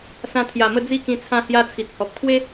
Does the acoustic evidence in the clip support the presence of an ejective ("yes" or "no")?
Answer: no